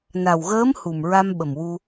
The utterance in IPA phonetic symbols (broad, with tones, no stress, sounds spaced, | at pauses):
n a˨˩ w ɣ əː˧˥ m h u˨˩ m ɹ a˧ m ɓ ə˨˩ m w u˧